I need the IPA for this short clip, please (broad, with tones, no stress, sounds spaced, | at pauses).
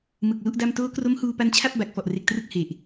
m ɯ˨˩ k̚ l u˦˥ ʔ d a˥˩ m t oː˦˥ k r o˦˥ m h uː˧ p a˦˥ n t͡ɕʰ a˥˩ p̚ b a˨˩ k̚ f ɔ˨˩ ʔ r e˨˩ k̚ t r ɯ˥˩ k̚ h e˨˩ ʔ